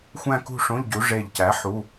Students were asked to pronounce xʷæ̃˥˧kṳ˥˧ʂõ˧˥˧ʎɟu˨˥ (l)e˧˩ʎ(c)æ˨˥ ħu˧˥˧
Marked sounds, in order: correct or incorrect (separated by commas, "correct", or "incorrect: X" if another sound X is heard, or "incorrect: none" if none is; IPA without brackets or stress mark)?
incorrect: ʐ, correct